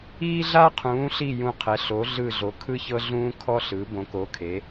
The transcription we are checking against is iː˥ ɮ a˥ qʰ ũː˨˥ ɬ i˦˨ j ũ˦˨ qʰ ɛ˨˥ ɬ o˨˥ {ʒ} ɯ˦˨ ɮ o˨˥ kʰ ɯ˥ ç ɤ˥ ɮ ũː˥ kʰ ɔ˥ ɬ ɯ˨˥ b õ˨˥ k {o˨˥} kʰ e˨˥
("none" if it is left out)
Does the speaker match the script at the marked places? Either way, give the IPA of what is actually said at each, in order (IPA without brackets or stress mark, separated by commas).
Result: ɮ, o˨˥